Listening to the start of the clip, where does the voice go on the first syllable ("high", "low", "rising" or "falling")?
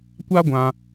high